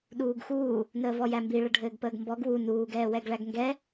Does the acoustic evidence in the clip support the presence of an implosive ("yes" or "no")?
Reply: yes